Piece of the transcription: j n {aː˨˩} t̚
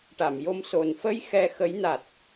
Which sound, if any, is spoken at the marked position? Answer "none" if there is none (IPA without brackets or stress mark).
a˨˩